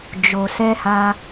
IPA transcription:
d͡ʒ o˨ s ɛ˧ h a˧

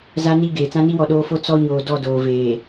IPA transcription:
z a˨ n i˨ ɡ eː˨ t͡s ã˦ n i˦ w ɔ˨ ɗ oː˦ f o˦ t͡s ɔ˦ ɲ oː˨ d ɔ˦˨ d oː˨ v eː˨

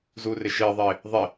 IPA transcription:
z uː r ɪ ʃ ɪː ðˤ ɪː | ðˤ ɪ

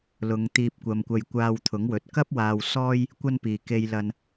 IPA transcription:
l ʊ˨˧ ŋ t̪ iː˧ p̚ kʷ ɐ˨ m kʷ ɐ˧ j kʷ aː˧ w t̪ʰ ʊ˨˥ ŋ w ɵ˨ t̚ k ɐ˥ p̚ w aː˧ w s ɔː˥ j | kʷ ɐ˥ n p iː˨ k e˧ j l ɐ˧ n

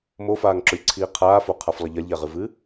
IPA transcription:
m o f aː ŋ ǁ o lʲ ǀʰ iː qʰ aː f o qʰ a f lˠ ɐ ʎ ɐ lʲ ʎ a ʁ ɨ v ɨ

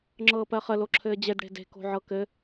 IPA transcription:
ŋ͡ǁ ɤː p ɜ χ ə l o ǁʰ ɘː d͡ʑ e d ɽ e̤ d e̤ k o̤ ʕ ɤ k ɘ

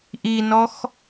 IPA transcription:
ʔ i n ɔ x

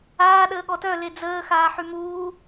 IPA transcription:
aː ɗ əː ɠ ɔ t œ l e d͡z əː x aː ħ y m uː

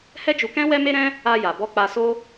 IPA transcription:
h ɛ˦ d͡ʒ u˧ k ɛ̃˦ w ɛ˦ m e˦ ɾ ɛ̃˦ | a˧ j a˨ b ɔ˧ k͡p a˧ s o˦

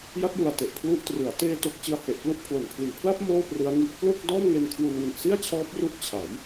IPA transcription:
j a˦˥ t̚ j u˨˩ a̯ t e˨˩ ʔ pʰ l u˦˥ ʔ t r ɯ˩˦ a̯ t eː˧ t o˨˩ k̚ t͡ɕ ɯ˧ a̯ h e˨˩ ʔ k l u˦˥ ʔ pʰ l o˨˩ n pʰ l iː˨˩ pʰ l a˥˩ p̚ m oː˥˩ p r ɯ˦˥ a̯ ŋ i˦˥ ʔ k l o˥˩ k̚ d ɔː˥˩ m ŋ e˧ n kʰ w u˧ n w i˨˩ ʔ s i˥˩ a̯ t͡ɕʰ ɔː˦˥ p̚ r u˦˥ ʔ t͡ɕʰ a˩˦ j

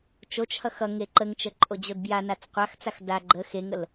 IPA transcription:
t͡ʃ o t͡ʃ h ʌ x ʌ ŋ e ǃ ə ŋ t͡ʃ ə ǃʼ o d͡ʑ o d b j a n a t͡s qʷ a x t͡s a x d a ɡ͡ǃ ə x e ŋ ə l

